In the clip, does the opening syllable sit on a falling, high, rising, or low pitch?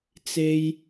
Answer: high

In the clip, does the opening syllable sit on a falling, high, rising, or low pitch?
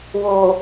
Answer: low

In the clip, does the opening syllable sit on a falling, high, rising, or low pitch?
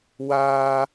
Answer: high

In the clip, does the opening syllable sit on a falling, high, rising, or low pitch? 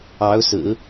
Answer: rising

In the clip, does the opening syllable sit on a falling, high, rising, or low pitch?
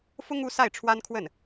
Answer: high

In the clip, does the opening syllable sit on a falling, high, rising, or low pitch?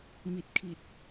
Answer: low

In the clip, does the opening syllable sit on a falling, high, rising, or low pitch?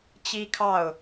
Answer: high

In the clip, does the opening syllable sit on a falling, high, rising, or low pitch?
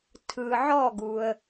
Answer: low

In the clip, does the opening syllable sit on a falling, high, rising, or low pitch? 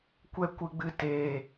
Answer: high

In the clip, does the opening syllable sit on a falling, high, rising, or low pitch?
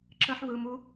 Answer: high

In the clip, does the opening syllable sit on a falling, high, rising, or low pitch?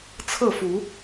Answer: falling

